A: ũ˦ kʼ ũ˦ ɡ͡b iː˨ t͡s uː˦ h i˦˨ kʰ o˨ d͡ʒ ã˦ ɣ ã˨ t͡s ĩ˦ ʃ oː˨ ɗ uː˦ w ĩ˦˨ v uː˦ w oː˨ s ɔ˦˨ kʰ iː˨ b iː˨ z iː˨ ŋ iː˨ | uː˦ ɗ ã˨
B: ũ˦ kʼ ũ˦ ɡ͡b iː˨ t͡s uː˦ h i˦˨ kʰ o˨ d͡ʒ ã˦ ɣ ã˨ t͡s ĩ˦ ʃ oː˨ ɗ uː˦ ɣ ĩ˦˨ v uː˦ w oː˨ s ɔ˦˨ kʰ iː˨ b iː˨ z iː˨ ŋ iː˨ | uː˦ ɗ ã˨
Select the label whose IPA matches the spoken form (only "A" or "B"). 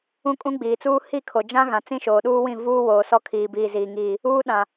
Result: A